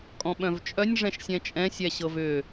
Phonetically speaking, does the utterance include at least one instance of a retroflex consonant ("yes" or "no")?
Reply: yes